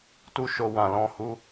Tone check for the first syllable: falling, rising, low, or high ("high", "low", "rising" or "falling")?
high